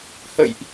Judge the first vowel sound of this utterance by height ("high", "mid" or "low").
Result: mid